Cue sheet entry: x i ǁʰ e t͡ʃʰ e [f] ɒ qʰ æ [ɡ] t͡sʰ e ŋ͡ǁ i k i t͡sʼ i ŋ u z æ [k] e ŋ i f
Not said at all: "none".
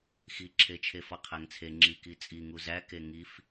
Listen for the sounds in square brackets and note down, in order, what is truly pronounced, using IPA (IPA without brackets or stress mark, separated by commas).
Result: f, ŋ, k